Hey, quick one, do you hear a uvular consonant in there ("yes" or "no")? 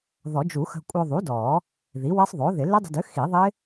no